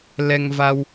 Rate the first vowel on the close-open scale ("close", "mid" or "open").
mid